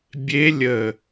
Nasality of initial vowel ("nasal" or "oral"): oral